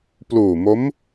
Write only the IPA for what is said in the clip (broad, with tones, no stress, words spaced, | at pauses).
pluː˨˩mo˦˥m